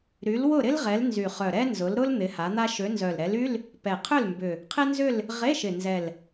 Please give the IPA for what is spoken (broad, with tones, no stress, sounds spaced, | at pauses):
ɾ y˨˦ l w ʊ˥˨ ɾ ɪ˥ l ʁ ɛ˨˦ l n z y˨˩ χ œ˨˩ ɾ ɛ˥ n z ʊ˨˦ l ɾ ʊ˥ l n̪ ɪ˨˦ h a˨˦ n̪ a˥ ʃ ø˨˦ n z œ˨˩ l ɾ ɛ˨˦ l y˧˥˧ l | p ɛ˨˩ qʰ ʏ˥˨ l m b ʏ˨˩ | qʰ ɪ˥ n z ʏ˥˨ l | ʁ e˧˥˧ ʃ ɪ˨˩ n z ɛ˨˩ l